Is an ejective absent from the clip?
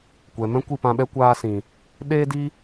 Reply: yes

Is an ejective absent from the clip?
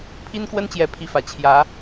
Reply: yes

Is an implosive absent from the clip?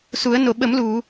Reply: no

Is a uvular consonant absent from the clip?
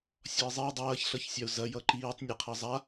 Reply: no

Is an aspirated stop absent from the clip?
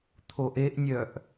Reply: no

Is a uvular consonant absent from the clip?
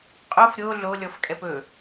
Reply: no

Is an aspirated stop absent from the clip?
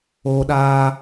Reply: yes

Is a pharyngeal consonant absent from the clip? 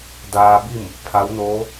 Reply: yes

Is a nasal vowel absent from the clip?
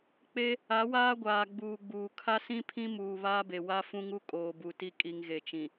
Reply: no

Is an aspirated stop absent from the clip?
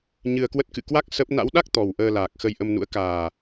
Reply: yes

